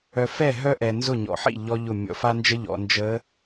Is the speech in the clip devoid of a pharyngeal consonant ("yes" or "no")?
no